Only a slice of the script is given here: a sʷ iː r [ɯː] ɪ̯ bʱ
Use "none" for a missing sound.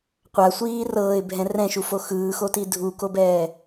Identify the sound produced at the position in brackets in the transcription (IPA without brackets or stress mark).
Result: ɤː